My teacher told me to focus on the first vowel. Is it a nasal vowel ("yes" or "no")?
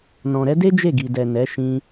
yes